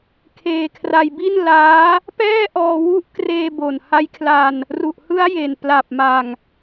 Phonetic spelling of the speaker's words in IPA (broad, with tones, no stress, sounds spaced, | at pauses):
kʰ eː˧ kʰ r a˧ j b i˥˩ n l aː˦˥ | p ɛː˥˩ ʔ ɔː˧ w u˦˥ ʔ k r eː˧ b o˨˩ n h a˦˥ j kʰ l a˧ n | r u˨˩ ʔ h ɯ˦˥ a̯ j e˨˩ n p l a˨˩ p̚ m a˨˩ ŋ